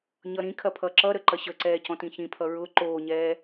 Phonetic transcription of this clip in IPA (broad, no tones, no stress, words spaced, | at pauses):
ɲʌɾĩkʰɐ pʰʌǁʌɾə ǃɐɕəǀɛː cɔ̃tĩçĩpʰʌ ɹʊ ǃoːɲɛː